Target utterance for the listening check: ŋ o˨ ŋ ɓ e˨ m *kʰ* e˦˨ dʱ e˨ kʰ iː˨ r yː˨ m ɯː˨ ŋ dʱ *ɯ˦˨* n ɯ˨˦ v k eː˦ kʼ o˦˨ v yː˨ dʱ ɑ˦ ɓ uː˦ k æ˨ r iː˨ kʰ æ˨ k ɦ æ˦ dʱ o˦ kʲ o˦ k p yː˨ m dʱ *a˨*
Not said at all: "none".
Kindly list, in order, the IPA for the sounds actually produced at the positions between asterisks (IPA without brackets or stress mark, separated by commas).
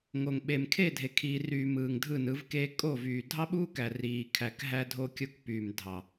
kʰ, ɯ˦˨, ɑ˨